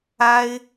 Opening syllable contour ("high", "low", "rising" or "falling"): high